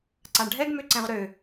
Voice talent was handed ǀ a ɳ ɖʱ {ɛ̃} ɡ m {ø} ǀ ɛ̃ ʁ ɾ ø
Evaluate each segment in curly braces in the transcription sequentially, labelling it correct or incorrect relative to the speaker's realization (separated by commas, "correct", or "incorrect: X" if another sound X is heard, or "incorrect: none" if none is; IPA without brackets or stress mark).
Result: incorrect: ɛ, correct